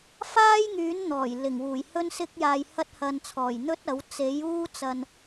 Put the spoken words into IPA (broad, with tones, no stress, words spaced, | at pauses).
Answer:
faː˥jŋyː˨˥nn̪ɔː˨˩j lɪ˨˩ŋwuː˨˩j hɵ˥nsɪ˥k̚ jaː˨jhɐ˧t̚hɐ˨nt͡sʰɔː˨˩j n̪ɵ˥t̚ɐ˨˥w t͡se˨˥juː˥ t͡sɐ˧n